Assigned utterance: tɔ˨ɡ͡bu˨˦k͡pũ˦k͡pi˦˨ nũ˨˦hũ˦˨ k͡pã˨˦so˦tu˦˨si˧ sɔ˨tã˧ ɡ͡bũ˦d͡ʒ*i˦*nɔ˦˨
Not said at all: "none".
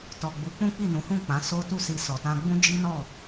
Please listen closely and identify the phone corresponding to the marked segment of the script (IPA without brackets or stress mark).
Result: i˦